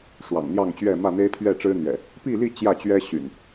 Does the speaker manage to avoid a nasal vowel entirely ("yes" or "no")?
yes